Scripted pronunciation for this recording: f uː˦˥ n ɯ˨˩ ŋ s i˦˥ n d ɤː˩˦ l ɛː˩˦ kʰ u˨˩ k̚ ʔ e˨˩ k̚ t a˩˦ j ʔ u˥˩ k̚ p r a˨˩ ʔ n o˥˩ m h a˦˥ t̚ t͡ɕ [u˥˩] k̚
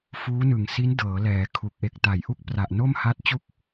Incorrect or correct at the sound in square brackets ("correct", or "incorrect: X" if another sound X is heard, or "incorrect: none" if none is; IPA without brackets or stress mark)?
correct